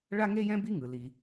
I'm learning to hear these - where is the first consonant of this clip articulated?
retroflex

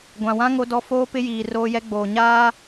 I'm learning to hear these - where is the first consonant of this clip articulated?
velum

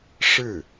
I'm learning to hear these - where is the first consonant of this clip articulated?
retroflex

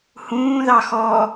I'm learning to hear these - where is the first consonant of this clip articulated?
throat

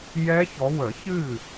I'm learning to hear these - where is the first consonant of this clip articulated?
palate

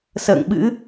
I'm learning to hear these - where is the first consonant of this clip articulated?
tongue tip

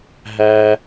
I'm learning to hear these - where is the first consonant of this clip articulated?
throat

